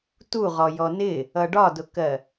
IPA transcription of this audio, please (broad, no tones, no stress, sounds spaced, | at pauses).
t u ʁ ɔ j ɔ n ɪ | ʌ ɖ ɒ d ʊ k ɜ